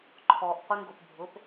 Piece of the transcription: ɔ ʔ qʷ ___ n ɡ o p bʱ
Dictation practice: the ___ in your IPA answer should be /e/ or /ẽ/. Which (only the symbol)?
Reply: e